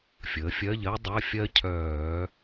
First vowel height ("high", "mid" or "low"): mid